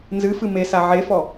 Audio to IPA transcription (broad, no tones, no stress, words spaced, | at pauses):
nzɨfɨ mesa ʕefɔ